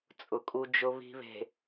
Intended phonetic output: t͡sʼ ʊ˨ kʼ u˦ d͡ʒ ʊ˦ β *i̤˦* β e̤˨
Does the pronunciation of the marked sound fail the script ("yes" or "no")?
no